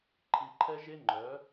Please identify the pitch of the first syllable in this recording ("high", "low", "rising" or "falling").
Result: low